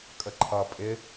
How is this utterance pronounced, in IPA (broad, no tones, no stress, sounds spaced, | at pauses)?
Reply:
kʼ ə ǃʰ ʌ pʼ ɪ